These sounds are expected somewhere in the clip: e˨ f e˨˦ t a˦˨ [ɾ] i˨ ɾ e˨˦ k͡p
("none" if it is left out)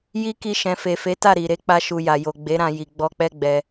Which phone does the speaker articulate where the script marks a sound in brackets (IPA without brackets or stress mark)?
ɾ